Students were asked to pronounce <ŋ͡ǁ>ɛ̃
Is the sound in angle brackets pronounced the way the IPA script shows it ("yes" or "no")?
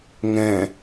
no